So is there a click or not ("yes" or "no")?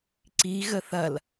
yes